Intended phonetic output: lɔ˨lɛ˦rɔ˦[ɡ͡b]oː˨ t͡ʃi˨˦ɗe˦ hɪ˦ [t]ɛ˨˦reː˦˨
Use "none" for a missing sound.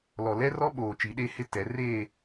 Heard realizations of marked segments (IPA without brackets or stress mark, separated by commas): ɓ, t